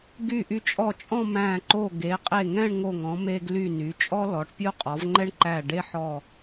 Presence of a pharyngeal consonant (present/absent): present